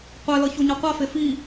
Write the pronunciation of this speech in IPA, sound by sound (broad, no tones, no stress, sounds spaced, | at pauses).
qʷ ɛ l ʌ ç o ɲ a qʷ a f e f i